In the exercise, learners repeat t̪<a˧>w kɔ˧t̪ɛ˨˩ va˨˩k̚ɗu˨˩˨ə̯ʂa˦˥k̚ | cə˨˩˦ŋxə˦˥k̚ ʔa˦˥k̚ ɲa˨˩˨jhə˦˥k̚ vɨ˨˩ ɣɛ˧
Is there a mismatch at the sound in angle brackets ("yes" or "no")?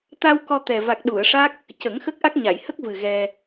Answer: no